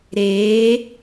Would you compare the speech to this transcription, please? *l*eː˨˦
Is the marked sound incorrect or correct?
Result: incorrect